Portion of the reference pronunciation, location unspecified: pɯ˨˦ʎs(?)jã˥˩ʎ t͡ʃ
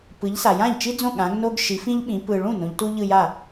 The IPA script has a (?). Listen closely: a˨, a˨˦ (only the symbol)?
a˨